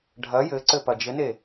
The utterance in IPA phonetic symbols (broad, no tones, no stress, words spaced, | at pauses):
ɖʱɐ jɘǀɘ pɐd͡ʒɘne